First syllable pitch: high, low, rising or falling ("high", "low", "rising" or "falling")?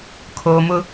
low